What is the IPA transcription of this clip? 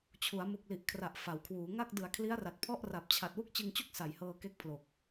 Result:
t͡ɕʰ u˩˦ a̯ m u˨˩ k̚ l i˨˩ ʔ kʰ r a˨˩ ʔ f a˩˦ w kʰ w uː˩˦ ŋ a˥˩ k̚ d ɯ˨˩ a̯ kʰ l i˦˥ a̯ r a˨˩ t̚ pʰ ɔ˥˩ ʔ r a˨˩ p̚ t͡ɕʰ a˨˩ t̚ w u˥˩ k̚ t͡ɕ ɯ˧ ŋ t͡ɕ u˥˩ k̚ s a˨˩ j h ɤː˧ k e˥˩ k̚ pʰ l o˨˩ k̚

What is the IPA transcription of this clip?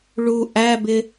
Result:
ɭ u ʔ æ b ɪ

